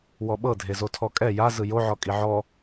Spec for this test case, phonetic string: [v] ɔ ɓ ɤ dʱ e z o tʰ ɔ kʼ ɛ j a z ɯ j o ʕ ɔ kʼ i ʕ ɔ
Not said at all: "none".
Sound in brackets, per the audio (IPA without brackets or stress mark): w